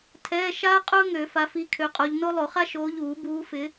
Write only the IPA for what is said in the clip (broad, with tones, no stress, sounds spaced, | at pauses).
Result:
tʰ ɛː˧˥˧ ʃ aː˥ qʼ ʊː˥ ŋ ø˨˩˦ f a˨˦ f i˨˦ kʰ ø˨˦ qʼ o˨˦ ʎ n o˥ lˠ o˨˩˦ χ a˥ ʃ oː˨˦ ʎ uː˨˩˦ b uː˨˦ f ɪ˨˦